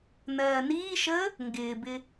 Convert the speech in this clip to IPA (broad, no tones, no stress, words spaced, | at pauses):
nɜːniːʃəː | ŋɡɪːbɪ